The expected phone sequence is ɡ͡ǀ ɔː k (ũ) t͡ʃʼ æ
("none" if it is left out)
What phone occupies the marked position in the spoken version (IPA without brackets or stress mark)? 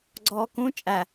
ũ